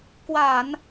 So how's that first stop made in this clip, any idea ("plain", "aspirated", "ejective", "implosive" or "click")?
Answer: plain